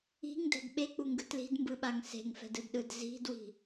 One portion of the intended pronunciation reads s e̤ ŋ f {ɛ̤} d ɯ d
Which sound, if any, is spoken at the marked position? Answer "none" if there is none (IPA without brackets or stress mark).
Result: ɛ̤